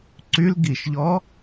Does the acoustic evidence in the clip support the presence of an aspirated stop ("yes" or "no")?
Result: no